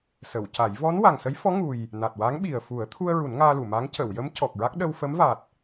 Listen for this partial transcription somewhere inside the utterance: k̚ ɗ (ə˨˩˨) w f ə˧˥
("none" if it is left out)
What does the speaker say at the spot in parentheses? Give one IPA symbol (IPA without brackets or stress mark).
ə˧